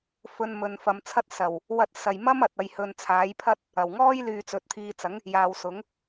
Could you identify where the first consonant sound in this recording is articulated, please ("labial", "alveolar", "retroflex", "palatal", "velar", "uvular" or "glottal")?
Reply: labial